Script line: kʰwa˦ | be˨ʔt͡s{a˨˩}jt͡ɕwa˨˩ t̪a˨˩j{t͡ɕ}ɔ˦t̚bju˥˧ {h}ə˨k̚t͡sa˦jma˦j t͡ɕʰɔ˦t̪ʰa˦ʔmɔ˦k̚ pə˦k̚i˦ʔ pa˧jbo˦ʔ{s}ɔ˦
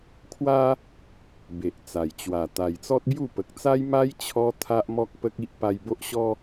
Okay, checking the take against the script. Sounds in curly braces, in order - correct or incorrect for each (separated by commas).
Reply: correct, incorrect, incorrect, incorrect